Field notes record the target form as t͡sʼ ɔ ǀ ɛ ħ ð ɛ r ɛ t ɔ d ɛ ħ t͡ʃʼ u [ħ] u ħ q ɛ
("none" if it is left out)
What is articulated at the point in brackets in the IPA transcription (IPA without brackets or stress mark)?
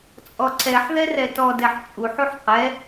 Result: ħ